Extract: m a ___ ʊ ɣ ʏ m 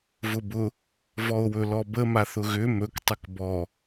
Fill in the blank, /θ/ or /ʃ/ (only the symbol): θ